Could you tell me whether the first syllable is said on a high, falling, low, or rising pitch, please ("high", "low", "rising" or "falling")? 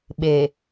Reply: low